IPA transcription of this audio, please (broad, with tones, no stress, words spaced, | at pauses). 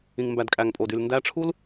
ĩ˨ŋmbæ˨dkʼæ˨ŋpʼo˨d y˨lndæ˧ʈ͡ʂʰu˦l